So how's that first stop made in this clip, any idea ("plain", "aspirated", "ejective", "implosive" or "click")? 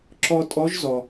click